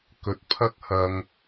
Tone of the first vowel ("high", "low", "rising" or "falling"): rising